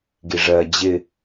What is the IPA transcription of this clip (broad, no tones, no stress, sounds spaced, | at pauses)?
ɡ i ʐ ɜ d͡ʑ ɪ